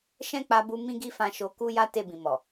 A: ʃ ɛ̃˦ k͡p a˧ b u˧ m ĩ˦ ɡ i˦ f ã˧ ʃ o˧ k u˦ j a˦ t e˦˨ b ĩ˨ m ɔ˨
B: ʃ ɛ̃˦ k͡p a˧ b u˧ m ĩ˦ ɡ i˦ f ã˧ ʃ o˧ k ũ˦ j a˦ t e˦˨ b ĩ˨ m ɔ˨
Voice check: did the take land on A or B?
A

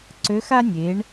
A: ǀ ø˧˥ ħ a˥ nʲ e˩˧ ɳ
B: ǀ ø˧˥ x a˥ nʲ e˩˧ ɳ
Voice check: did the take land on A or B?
B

